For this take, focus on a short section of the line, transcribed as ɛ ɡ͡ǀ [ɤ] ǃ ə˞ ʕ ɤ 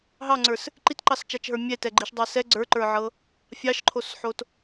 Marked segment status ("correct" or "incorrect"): incorrect